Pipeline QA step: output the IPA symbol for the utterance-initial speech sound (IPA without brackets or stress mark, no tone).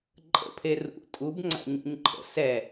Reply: ǃʼ